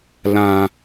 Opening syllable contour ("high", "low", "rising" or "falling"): low